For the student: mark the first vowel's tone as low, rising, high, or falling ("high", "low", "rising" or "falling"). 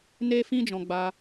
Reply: high